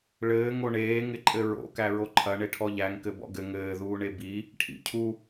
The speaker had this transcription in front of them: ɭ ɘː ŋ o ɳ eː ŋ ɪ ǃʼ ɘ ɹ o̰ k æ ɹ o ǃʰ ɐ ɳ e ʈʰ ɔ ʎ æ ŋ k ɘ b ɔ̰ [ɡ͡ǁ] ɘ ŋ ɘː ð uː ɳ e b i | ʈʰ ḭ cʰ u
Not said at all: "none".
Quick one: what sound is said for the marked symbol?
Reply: ɡ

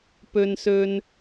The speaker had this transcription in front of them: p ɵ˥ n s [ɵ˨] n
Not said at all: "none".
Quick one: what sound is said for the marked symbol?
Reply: ɵ˥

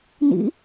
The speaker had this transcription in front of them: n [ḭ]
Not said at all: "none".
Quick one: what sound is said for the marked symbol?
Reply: ḭ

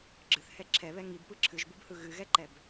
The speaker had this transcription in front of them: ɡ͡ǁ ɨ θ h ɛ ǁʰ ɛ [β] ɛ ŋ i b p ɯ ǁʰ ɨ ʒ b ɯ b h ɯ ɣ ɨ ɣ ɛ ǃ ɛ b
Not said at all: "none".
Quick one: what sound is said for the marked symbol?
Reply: β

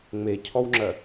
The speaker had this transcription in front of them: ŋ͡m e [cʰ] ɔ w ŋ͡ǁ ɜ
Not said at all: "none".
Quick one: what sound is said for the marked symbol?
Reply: cʰ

